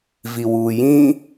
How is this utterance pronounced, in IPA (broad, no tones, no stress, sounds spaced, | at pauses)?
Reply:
v i w uː j ĩ